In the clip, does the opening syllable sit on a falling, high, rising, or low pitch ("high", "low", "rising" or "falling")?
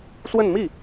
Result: falling